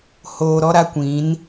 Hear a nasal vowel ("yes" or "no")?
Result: yes